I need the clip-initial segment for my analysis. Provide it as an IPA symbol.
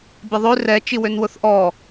bʲ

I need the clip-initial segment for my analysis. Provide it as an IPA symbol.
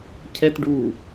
cʰ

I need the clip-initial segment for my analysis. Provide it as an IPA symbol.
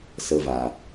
s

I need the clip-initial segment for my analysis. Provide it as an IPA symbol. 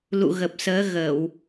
l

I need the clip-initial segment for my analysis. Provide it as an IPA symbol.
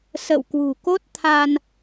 s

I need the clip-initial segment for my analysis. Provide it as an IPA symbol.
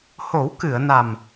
h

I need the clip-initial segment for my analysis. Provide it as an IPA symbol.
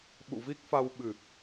ɓ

